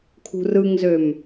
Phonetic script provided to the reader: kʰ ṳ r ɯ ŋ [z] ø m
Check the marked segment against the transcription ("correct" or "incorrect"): correct